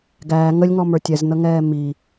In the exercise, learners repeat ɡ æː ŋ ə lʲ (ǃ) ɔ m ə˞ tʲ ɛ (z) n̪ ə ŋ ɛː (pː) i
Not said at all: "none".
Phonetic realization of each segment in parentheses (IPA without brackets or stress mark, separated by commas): ŋ, z, m